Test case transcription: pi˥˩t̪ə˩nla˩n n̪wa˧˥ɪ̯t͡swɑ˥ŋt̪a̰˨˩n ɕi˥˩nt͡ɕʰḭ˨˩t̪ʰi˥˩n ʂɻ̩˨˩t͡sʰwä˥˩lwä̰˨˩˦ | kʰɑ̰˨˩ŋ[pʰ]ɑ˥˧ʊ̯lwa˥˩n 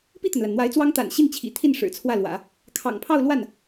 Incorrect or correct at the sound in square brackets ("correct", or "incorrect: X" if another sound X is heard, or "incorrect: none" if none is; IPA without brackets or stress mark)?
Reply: correct